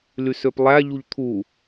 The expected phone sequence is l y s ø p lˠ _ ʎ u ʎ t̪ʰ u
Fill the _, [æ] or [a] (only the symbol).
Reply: æ